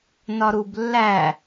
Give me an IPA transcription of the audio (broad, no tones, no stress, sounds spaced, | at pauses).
n ɒ ɾ u b lː æ